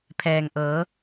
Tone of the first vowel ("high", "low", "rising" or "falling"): low